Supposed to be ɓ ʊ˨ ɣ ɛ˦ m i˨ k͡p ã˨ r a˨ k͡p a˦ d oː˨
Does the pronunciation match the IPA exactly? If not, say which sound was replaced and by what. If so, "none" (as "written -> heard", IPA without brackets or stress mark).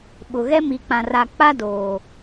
none